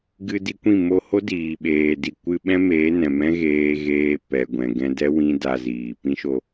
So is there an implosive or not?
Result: yes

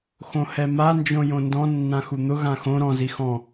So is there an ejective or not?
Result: no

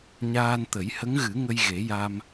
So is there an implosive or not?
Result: no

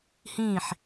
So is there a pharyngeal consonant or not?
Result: yes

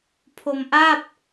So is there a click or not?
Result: no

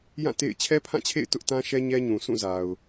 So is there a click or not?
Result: no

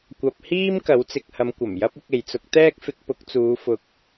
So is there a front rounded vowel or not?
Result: no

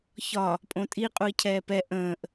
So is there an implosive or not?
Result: no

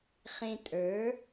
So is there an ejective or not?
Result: yes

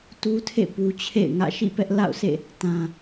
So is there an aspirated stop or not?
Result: yes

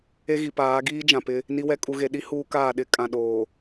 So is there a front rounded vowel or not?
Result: no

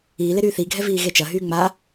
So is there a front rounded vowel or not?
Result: yes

